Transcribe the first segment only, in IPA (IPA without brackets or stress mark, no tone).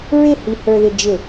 ɹ